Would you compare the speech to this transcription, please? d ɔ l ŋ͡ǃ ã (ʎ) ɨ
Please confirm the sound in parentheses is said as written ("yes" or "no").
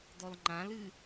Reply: no